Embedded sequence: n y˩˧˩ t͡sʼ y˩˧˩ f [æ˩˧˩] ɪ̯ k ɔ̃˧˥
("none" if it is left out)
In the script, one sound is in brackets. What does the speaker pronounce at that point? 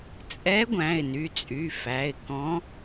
æ˩˧˩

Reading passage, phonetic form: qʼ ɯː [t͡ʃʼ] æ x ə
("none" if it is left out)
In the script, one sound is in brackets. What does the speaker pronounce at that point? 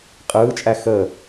t͡ʃʼ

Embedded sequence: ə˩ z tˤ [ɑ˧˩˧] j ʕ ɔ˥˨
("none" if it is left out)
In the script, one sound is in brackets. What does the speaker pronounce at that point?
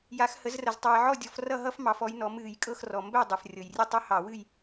ɑ˩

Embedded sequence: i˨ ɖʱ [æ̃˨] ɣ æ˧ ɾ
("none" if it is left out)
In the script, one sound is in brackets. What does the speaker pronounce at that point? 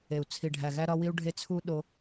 æ˨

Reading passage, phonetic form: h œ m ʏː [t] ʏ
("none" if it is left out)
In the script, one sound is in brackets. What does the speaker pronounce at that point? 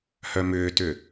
t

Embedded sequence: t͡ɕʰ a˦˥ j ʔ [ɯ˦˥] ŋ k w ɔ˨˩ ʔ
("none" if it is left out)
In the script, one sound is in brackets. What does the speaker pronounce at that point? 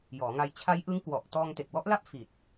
ɯ˦˥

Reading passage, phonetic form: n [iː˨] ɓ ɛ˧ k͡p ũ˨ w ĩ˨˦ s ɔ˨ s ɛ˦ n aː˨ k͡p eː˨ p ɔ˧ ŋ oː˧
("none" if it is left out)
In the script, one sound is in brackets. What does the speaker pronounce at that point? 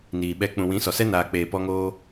iː˨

